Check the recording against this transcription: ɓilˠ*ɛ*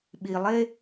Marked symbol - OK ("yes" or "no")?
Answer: no